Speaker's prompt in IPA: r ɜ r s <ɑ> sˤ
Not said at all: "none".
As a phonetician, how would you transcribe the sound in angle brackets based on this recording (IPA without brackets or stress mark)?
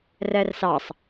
ɑ